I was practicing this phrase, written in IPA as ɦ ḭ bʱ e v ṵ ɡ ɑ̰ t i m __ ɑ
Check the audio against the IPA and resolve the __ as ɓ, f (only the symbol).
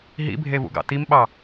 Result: ɓ